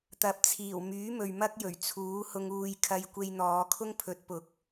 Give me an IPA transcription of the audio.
t̪ ɐ˨ p̚ t͡sʰ iː˨˩ w m yː˨˥ m ɵ˨ ɥ m ɐ˥ k̚ j ɵ˨˩ ɥ t͡sʰ uː˨˥ h ʊ˧ ŋ uː˧ j kʰ ɐ˧ j kʷ e˧ j n̪ ɔː˨˧ kʰ ʊ˥ ŋ pʰ ɵ˨˥ t̚ p ʊ˨˥ k̚

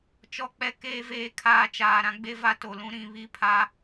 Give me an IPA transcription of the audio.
t͡ʃ ɔ˨ k͡p ɛ˨ k eː˨ v eː˨ kʰ aː˨ t͡ʃ aː˨ ɾ ã˦ ɡ͡b e˦ v a˦ t o˨ l ũ˦ ɾ ĩ˨ β i˦ pʰ a˦

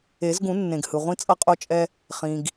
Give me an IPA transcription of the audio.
e˨˩˦ z ɡ ũ˨˩˦ nː ẽ˩ ɡ h ɯ˩ ʁʷ ĩ˧ t͡sʼ ʌ˧ qʼ o˧ t͡ʃʼ ɛ˧ | χ ĩ˩ ɡ

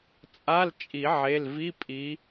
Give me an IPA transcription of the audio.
t͡sʼ a˧˥˧ l t͡ʃʼ i˨˩˦ ʕ e˩˧˩ l v i˧˥˧ pʼ i˨˦

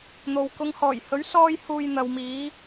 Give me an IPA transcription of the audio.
n̪ o˨ w k ʊ˨˧ ŋ h ɔː˨˩ j h ɵ˨˥ ɥ s ɔː˥ j h uː˧ j n̪ ɐ˨ w m iː˨˧

